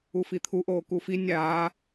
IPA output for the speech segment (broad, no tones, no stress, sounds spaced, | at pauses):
u f i t̪ʰ u ʔ oː k u f i nʲ aː